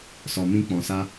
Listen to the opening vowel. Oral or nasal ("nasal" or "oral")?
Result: oral